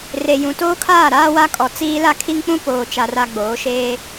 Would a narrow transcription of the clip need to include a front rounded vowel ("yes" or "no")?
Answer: no